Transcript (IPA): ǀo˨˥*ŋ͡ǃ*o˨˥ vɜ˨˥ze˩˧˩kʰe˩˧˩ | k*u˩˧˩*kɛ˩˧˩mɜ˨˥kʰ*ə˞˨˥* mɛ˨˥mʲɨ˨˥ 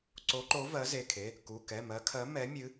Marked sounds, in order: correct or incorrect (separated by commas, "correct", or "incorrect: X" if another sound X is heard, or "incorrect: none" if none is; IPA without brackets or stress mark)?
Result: incorrect: ǃ, correct, incorrect: ɜ˨˥